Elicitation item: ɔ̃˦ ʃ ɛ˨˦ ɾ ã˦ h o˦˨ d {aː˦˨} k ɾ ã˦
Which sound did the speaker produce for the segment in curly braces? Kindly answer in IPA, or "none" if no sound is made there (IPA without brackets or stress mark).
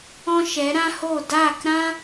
aː˦˨